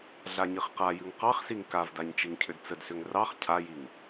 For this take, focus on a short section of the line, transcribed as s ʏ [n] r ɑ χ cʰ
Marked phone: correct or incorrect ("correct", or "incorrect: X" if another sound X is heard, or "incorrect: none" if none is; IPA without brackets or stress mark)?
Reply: incorrect: ŋ